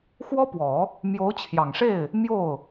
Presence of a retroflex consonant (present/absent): present